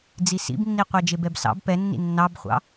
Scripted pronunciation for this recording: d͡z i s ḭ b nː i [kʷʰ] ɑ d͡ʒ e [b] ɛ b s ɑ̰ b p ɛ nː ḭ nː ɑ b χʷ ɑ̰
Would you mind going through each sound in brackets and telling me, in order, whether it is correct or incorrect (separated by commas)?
incorrect, correct